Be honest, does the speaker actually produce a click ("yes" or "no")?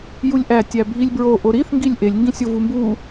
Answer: no